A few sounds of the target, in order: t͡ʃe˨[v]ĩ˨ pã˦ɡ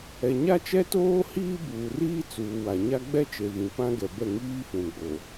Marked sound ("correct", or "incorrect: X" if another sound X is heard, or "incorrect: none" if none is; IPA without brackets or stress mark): correct